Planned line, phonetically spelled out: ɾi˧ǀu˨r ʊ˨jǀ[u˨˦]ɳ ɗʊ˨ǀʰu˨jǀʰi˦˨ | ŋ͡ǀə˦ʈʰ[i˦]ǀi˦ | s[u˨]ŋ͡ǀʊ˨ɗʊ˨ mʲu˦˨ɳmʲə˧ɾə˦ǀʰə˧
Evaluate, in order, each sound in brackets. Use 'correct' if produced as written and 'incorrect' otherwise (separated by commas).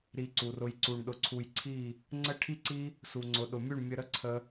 incorrect, correct, correct